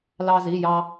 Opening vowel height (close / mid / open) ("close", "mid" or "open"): open